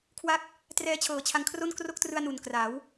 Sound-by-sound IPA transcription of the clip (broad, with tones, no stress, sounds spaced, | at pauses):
kʰ w a˥˩ k̚ | t r ɛː˦˥ t͡ɕʰ ɤː˨˩ t͡ɕʰ a˧ ŋ kʰ r o˥˩ n k r o˥˩ k̚ t r ɯ˧ a̯ n u˨˩ n k r a˩˦ w